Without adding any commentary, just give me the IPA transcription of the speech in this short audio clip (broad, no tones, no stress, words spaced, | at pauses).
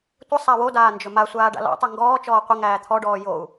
tʷə sˤawodaː nd͡ʒɵmasʷaː ɖa̰lɔ̰tˤɵ ŋɡɔːt͡ʃɔː qʷəŋæː t̪ʰɔɖɔː jou̯